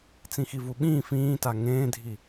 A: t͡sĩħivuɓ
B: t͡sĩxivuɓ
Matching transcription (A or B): B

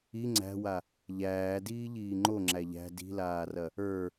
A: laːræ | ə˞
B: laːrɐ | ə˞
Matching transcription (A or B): B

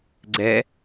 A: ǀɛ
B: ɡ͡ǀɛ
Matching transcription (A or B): B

